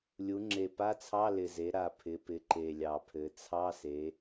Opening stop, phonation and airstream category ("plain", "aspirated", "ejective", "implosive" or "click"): click